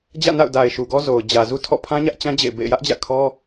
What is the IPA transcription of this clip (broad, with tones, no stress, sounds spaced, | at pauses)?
d͡ʑ ä̰˦˨ n a̰˦˨ ʊ̯ d a˨ ɪ̯ ʃ u˨ ɡ ɔ˦ z o˨ ʊ̯ d͡ʑ ä˨ z u˦ tʰ ɔ̰˦˨ pʰ ã˦ ɲ ä˦ ʔ t͡ɕ ã˦ d͡ʑ ḛ˦˨ ɪ̯ b ḛ˦˨ ɪ̯ j ä˦ ʔ d͡ʑ ä̰˦˨ kʰ ɔ˦